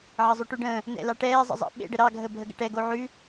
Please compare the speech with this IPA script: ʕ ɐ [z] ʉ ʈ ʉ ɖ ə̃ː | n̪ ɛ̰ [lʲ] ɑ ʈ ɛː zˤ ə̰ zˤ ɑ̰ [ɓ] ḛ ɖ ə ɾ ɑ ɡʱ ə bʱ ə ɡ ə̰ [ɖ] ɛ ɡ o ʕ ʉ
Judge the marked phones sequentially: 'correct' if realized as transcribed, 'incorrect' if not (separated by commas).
incorrect, incorrect, correct, incorrect